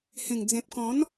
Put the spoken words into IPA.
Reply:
h ẽ˨˩ ŋ d͡z ẽ˨ p̚ k ɔ̃˨˦ n

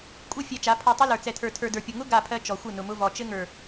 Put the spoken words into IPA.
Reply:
kʷʼ ɘ˦˨ fʲ ɛ˧ t͡ʃ a˨˦ pʰ ɔ˧ tˤ ʊ˦ l ə˞˨ t͡s ɛ˨ tʰ ə˞˨ tʰ ə˞˨ d ə˞˨ pʲ ʊ˨ ŋ ʊ˦ ɡ a˦˨ pʰ ɜ˦ t͡ʃ ɔ˨ xʷ ɘ˦˨ n ʊ˨ m ʊ˧ v ɔ˨ t͡ʃ ɘ˦ ŋ ə˞˨

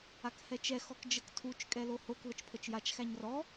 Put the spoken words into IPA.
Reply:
a k h ɛ t͡ʃ ɛ x ɔ k d͡ʒ ə k tʰ u t͡ʃ kʼ ɛ l o h o k ð ə t͡ʃ pʰ ə t͡ʃ j a t͡ʃ x æ ɲ r ɔ

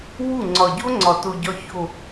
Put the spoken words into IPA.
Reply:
w u˦˨ ŋ͡ǀ ɒ˨ ɟ o˦ ŋ͡ǀ ɒ˨ t o˨ ɟ ɒ˨ ç o˨

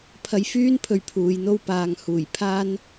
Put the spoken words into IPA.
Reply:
pʰ ɐ˧ j f yː˥ n pʰ ɵ˨˧ ɥ pʰ uː˨˧ j n̪ o˥ w p aː˨ ŋ h uː˨˩ j pʰ aː˥ n

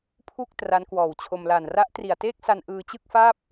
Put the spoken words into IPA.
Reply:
pʰ u˥˩ k̚ t r a˦˥ n k w ɔː˨˩ w t͡ɕʰ o˧ m l a˨˩ n r a˦˥ ʔ t r i˨˩ a̯ t eː˥˩ k̚ s a˧ n ʔ ɯː˧ t͡ɕ ɯ˥˩ k̚ f aː˥˩ p̚

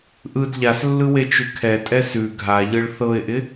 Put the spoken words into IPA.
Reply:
ʔ ɯ d ʎ a s lː ɯ w e t͡ʃ ʉ kʰ ɛ tʼ ɛ s ʉ ɡʱ a ʎ ɯ ɭ θ ɤ ɪ̯ ʔ ɪ

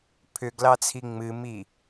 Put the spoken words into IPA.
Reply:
pʰ ʏ ɡ l ɑ t͡sʰ i ŋ͡m ɨ m i

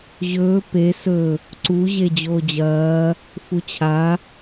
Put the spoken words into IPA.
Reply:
ʑ ɵː p e s ɵ | ǀ u ʑ e d͡ʑ oː d͡ʑ ɐː | f u t͡ɕʰ a

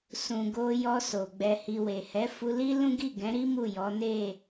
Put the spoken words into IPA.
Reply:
s ũ˨ ɡ o˧ j ɔ˧ s o˨ ɡ͡b ɛ˨ h i˨ w e˨ h ɛ˨˦ f u˧ l i˦ l ũ˦ ɡ i˦˨ ɡ ɛ̃˨˦ ɾ i˦ m u˦˨ j ɔ˨˦ n e˦˨

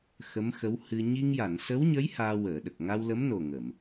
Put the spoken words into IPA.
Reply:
x ə˧˥ m x ə˧˥ w h ɨ˧ ɲ i˧ ŋ j a˨˩˨ n s ə˧˥ w ɲ ə˧˥ j h aː˧ w əː˨˩˨ ɗ ə˨˩ k̚ ŋ a˧ w l ə˧˥ m n o˨˩ ŋ ə˨˩˨ m

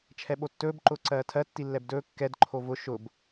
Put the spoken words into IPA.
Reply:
t͡ʃʰ ɛ ɓ o tː ɵː b ǃ ʊː ǀ ɜː tʰ ɜ tː i lː ɛ b d ɵː kː ɛ d ǃʰ o v ʊ ʃ ʊ b

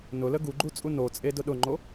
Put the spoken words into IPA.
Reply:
n ʊ l ə ɡ u ɡ͡ǃ u t͡sʼ u n o t͡sʼ e d ʊ ɗ ʊ ŋ͡ǃ o

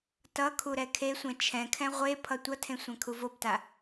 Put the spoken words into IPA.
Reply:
t ʌ kʰ u ɾ ɛ kʰ e sʷ ɛ̃ t͡ʃʰ ɛ̃ kʰ ɛ̃ ʁʷ e pʰ ʌ tʷ ʌ tʰ ẽ sʷ ɛ̃ kʰ u v o b t a

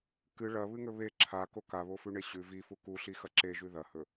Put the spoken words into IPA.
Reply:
k ɨ ɭ ɐ β ɨ ŋ ɵ β e ǁʰ a k o k a β o f ʉ ɳ e ɕ ʉ v i f u k u ɬ i x ɐ ǁ e ʒ ʉ ð ɐ h ɵ

